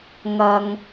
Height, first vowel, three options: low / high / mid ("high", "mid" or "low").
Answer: low